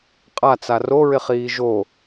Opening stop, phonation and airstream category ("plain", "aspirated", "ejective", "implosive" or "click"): ejective